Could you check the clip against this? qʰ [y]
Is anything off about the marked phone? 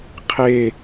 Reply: yes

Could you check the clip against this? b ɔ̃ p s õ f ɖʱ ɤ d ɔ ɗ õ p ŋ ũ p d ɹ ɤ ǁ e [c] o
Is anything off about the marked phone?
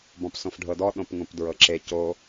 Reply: no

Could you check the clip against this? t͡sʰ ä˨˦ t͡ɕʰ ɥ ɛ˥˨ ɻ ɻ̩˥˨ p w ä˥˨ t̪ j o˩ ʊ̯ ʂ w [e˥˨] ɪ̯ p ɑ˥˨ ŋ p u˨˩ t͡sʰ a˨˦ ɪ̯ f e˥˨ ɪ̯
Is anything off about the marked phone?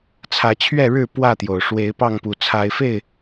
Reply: yes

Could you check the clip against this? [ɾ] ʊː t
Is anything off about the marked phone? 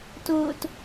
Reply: yes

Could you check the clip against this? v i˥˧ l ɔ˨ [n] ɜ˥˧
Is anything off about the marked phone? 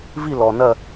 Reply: no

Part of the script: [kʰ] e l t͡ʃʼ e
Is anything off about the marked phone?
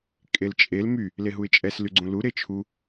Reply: yes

